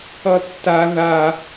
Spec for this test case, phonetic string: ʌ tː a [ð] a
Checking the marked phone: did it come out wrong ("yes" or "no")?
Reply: no